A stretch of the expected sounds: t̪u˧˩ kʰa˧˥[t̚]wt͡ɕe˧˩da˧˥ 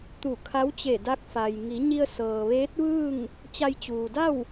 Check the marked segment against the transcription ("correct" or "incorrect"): incorrect